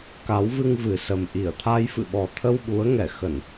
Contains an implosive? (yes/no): yes